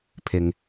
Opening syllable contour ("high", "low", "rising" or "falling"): low